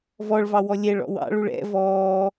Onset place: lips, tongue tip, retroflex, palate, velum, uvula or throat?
lips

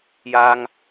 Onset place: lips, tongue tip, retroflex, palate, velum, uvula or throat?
palate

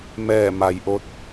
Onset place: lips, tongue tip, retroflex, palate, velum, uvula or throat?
lips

